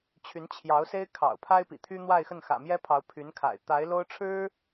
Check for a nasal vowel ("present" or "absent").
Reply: absent